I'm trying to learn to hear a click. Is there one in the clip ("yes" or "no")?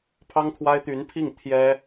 no